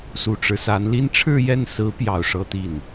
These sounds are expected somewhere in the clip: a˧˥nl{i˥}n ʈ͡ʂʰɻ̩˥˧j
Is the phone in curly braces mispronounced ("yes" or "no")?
no